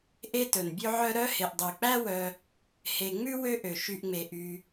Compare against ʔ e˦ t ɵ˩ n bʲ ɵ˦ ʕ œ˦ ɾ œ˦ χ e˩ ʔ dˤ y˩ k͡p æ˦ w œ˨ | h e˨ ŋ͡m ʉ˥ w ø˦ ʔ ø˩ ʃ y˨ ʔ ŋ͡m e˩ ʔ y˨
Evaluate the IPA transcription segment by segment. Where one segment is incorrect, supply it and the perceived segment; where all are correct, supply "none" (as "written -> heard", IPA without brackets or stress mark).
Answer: χ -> h